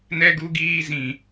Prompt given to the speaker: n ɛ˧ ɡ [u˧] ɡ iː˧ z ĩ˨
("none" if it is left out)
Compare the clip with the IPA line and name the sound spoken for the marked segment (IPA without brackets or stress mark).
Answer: u˧